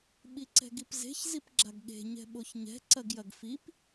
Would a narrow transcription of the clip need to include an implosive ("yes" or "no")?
yes